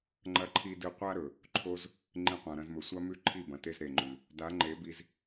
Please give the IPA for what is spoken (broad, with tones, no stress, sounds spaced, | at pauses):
ŋ͡ǃ ɐ˦ ǃʰ i˦ d ɨ˦ qʷ a˦ ɾ ɵ˨ | ǃʰ o˦ z | ŋ͡ǃ ĩ˧ qʷ ã˨ ɾ ɐ̃˧ z m ɵ˨ sʷ a˦ m ʉ˦˨ ǃʰ i˦˨ b ɐ̃˨ t e˦ z ɾ e˨ ŋ͡ǃ ʉ˨ | d a˨˦ ŋ͡ǃ e˨˦ b i˧ z